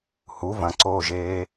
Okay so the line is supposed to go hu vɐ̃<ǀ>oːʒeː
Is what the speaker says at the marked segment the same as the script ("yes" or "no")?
yes